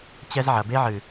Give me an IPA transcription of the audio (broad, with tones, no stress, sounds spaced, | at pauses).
t͡ɕ ɛ˦ z ʕ ɐ˨ b e˦ ʕ ɨ˨